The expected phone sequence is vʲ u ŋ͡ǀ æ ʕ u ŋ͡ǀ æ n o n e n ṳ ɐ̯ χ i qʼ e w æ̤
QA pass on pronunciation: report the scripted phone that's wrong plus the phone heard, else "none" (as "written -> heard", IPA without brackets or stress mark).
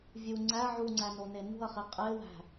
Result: none